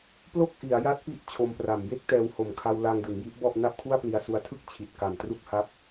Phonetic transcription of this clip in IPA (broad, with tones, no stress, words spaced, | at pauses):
plo˥˩k̚ʔi˩˦a̯ja˦˥t̚ pi˦˥ʔ t͡ɕʰo˧mpra˨˩m je˥˩k̚tɛː˧who˨˩mkʰa˧w la˧ŋ dɯ˩˦ŋji˦˥ʔbɔ˥˩ʔ na˥˩p̚kʰu˥˩a̯pli˧a̯su˧a̯ tʰɯ˥˩k̚ t͡ɕʰi˨˩t̚ka˨˩m tru˥˩k̚ha˦˥p̚